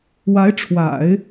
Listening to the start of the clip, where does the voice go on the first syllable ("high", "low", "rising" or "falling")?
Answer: rising